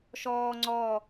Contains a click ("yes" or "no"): yes